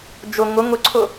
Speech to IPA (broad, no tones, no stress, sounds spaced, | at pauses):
d͡ʒ ʊ ŋ ʊ ŋ ʊ ǀʰ ʊ